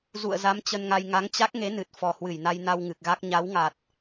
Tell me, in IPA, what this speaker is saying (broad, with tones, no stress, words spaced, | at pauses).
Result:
zṵ˧˨ə̯za˨˦m t͡ɕə˧nŋa˧j ŋa˨˦ŋt͡ɕa˦˥k̚ŋe˨˦nɨ˨˩t̚ fɔ˨˩hwɨ˧˩jna˧jna˧w ŋɨ˨˩k̚ɣa˦˥k̚ ɲa˨˦wŋa˨˩t̚